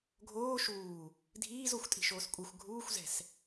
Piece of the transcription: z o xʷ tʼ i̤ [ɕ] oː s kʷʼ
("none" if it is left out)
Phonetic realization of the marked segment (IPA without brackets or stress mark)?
ʃ